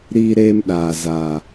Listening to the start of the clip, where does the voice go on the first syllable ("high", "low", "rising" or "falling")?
high